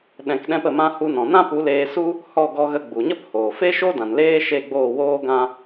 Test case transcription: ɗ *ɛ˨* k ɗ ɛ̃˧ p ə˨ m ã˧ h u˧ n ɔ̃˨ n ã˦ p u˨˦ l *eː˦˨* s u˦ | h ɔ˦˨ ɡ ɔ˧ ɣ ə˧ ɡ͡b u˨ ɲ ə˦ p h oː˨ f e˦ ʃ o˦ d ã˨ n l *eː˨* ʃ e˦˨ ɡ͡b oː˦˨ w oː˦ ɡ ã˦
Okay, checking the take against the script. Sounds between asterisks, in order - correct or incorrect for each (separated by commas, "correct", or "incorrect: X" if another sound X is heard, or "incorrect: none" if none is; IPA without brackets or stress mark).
incorrect: ɛ̃˨, incorrect: eː˧, incorrect: eː˦